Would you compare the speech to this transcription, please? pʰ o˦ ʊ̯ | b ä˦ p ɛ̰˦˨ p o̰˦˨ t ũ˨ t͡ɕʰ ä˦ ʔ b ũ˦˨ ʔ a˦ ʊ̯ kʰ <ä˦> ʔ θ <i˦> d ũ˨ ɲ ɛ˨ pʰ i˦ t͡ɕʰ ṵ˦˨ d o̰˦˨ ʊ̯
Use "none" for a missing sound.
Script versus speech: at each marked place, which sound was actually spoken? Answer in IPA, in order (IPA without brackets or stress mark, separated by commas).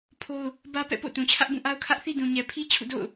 ä˦, i˦